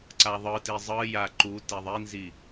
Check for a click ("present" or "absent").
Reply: present